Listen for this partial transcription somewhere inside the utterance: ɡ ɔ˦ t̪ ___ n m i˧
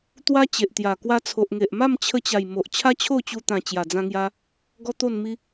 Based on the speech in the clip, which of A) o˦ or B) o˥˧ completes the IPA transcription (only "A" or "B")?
B